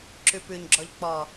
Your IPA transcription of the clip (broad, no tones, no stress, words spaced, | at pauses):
ǁʉpʉɲɡ͡ǁɔʎ k͡pɔ